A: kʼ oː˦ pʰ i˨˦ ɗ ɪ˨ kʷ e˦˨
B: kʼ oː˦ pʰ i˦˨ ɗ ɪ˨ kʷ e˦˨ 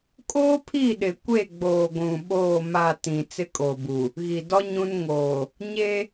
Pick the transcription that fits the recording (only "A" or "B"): B